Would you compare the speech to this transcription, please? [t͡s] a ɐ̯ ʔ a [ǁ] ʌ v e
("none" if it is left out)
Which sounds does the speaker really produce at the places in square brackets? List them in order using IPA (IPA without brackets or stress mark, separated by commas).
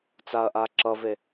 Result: t͡s, ǁ